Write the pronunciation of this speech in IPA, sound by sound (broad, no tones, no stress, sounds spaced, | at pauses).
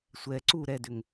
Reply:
sʷ ɛ ǀ u ɾ ɛ d ʏ ŋ